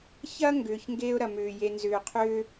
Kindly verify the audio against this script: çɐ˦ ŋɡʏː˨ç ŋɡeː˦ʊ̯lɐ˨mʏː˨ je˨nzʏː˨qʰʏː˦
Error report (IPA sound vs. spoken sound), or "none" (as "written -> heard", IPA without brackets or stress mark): l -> ɾ